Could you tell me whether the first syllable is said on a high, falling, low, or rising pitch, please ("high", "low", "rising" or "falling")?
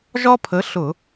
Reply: high